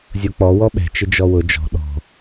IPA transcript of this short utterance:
zʲ o k͡p ɔ w ɔ ɓ ɛ̤ t͡ʃ ɪ d͡ʒ ɔ w ʊ d͡ʒ ɔ̤ ɗ ɔ̤

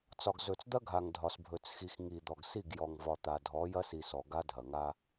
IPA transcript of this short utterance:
t͡s ɒ˨ ɡ z ɵ˨ t͡s d̪ ɐ˦ ɡʱ a˨ ŋ dʱ ɒ˨ s bʱ ɵ˨ t͡s x i˨ x ŋ i˨ d̪ ɔ˨ ɡ s i˦˨ ɡ j ɔ˨ ŋ v ɒ˨ t̪ a˨ dʱ ɔ˨˦ j ɐ˦ s i˨ s ɔ˨ ɡ a˦ dʱ ɐ˨ ŋ a˦

